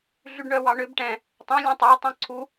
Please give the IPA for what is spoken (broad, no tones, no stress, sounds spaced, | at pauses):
ɮ y ɖ ɳ œ w ɑ ɳ ø b ʈ ɛ̃ | tˤ ɛ̃ lʲ œ̃ tˤ ɑ tˤ œ̃ ǀʰ u